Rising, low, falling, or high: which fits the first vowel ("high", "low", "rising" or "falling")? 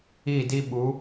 falling